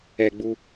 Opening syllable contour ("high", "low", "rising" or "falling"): low